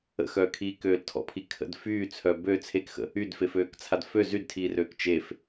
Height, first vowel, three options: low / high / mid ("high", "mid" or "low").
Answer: mid